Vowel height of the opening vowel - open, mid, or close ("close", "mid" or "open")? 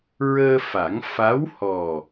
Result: mid